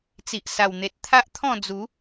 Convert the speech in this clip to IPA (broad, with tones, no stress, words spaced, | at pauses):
t͡si˨ʔsa˨˩wn̪e˨t̚ t̪ʰa˦ʔt̪ʰɔ̃˥˧d͡zu˨˦